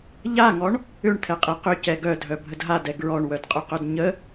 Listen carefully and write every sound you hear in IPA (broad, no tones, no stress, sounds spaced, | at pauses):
ʎ a ŋ ɔ ɳ | ʏ ɳ t̪ʰ ɛ qʼ ɛ q ʏ c ɛ ɡ œ dʱ œ bʱ ə d ɦ a d ɛ ɡ ɹ ɔ ɳ w œ d qʼ ʏ q œ d ɲ ə